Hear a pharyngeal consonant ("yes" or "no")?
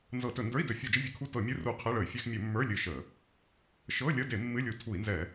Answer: no